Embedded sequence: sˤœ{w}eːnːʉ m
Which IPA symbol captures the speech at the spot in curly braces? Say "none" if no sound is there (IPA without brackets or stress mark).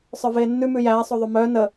v